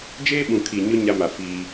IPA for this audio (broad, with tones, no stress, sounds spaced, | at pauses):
d͡ʒ eː˦ ɓ ũ˨ kʰ i˨ ɲ ʊ˦ ɲ a˦ m a˨ f iː˦